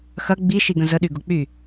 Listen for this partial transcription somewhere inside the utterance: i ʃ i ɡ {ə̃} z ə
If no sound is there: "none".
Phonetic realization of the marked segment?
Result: ə̃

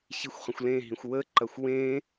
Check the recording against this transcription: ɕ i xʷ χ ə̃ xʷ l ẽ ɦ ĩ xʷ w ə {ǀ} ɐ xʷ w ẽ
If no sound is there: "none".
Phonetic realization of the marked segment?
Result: ǃ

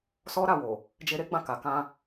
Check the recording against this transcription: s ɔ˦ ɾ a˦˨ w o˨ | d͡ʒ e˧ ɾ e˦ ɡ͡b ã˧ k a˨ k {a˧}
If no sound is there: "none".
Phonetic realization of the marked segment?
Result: ã˧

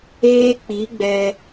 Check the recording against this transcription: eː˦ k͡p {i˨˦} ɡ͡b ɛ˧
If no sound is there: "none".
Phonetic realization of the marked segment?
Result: i˨˦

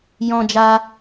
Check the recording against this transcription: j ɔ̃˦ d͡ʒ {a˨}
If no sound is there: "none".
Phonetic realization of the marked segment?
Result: a˦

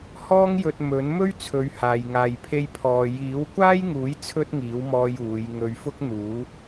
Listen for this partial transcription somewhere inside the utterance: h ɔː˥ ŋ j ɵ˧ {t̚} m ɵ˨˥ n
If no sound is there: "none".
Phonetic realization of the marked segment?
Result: t̚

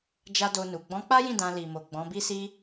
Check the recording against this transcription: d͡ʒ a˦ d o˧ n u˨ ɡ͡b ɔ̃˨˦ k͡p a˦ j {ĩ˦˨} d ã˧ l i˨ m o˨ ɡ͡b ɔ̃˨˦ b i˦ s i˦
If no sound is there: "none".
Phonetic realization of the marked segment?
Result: ĩ˦˨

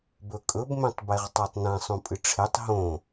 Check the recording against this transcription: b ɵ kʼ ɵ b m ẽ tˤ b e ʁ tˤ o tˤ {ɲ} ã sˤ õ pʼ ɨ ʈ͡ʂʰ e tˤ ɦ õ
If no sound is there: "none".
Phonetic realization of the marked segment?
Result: n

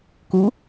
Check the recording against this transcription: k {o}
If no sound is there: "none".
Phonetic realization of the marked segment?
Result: u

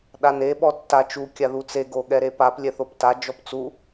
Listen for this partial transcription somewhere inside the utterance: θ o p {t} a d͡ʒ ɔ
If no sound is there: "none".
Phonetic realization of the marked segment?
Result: t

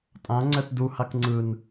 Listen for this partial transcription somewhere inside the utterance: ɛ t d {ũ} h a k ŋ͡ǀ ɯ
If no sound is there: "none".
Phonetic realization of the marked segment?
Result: u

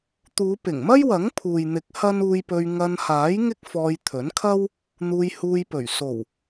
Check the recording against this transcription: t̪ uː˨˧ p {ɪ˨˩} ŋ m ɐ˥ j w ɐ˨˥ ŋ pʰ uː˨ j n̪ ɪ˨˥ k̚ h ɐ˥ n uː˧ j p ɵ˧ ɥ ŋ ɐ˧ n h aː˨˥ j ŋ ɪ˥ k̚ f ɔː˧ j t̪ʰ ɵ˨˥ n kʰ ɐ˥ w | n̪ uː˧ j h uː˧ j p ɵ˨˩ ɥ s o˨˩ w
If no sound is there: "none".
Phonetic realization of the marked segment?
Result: ɪ˨˩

